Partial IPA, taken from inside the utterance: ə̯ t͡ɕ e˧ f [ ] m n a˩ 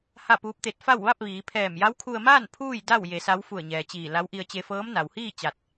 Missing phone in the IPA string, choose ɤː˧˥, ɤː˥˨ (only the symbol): ɤː˧˥